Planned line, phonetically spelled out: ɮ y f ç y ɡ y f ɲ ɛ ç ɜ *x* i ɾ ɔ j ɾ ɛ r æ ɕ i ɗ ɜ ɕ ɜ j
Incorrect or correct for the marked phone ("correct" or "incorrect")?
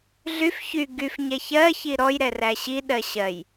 incorrect